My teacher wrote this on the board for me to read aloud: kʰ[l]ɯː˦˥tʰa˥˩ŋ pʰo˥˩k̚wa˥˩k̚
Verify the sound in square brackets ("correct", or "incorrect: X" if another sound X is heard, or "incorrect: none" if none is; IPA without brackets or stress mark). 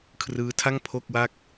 incorrect: r